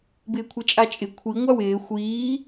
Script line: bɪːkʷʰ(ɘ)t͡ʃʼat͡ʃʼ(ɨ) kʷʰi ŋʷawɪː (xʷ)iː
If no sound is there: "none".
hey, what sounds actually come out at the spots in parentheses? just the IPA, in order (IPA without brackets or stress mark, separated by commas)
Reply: ɛ, ɪ, xʷ